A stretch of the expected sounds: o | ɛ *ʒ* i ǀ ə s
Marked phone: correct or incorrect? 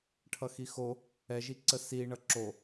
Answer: correct